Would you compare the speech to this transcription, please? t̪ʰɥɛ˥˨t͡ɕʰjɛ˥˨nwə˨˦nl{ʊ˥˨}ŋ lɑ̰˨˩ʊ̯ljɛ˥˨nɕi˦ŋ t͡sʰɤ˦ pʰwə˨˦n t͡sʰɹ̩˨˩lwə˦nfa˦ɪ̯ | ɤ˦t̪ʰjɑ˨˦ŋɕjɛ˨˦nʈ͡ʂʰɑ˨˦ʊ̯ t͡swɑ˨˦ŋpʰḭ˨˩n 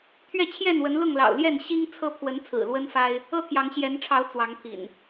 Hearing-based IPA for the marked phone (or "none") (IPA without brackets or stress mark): ʊ˥˨